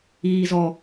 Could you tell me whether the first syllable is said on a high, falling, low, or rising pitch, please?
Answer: low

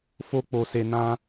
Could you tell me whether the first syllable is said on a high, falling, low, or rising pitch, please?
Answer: high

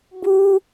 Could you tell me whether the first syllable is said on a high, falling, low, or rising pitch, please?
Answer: high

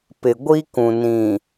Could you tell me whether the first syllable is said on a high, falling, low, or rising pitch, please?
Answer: low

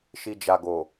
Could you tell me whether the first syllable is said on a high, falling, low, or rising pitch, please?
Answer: low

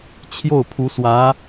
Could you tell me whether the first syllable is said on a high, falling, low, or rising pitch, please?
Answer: falling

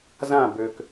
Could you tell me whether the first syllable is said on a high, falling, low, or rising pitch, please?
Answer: falling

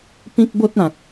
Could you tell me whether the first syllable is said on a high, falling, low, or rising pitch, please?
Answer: high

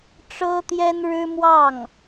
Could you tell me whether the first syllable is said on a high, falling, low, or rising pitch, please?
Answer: high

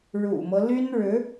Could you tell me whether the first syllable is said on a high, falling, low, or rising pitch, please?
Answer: low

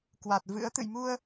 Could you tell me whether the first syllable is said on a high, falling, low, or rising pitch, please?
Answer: low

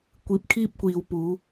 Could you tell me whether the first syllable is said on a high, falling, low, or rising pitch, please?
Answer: low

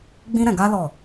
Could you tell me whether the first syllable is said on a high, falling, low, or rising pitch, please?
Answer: high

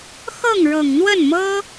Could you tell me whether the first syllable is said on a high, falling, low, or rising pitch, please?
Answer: falling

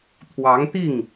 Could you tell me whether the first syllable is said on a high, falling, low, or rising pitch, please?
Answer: rising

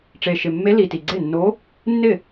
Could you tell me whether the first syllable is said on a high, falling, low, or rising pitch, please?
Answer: low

